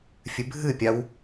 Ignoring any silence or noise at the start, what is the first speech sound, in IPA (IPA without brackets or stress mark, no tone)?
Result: fʲ